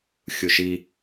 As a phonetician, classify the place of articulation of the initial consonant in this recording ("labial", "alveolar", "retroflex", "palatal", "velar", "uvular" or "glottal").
velar